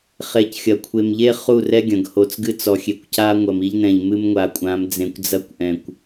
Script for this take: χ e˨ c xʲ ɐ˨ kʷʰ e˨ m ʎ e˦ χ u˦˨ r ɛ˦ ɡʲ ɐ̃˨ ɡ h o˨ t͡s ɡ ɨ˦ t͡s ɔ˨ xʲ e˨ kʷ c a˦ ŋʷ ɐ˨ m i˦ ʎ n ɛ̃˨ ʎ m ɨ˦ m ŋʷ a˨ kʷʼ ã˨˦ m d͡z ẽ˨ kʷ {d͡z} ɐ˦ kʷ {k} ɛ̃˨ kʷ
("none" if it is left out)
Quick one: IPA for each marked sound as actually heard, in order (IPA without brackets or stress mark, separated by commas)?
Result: d͡z, ʔ